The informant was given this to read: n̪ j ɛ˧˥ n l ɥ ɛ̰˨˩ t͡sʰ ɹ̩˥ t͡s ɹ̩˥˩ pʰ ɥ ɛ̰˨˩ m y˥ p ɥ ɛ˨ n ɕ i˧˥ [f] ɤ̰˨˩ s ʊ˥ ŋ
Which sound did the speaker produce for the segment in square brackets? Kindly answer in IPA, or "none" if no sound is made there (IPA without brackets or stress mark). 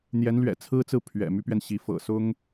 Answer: f